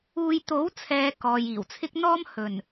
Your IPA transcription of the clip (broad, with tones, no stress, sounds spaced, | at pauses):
uː˧ j t̪ o˨˥ w t͡sʰ ɛː˨ k ɔː˨ j iː˨˩ w t͡sʰ ɪ˥ k̚ n̪ ɔː˥ m h ɵ˨˩ n